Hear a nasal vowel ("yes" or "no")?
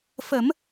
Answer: no